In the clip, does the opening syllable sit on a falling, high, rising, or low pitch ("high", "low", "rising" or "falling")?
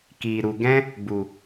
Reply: low